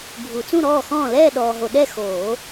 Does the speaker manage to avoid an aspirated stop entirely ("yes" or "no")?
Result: yes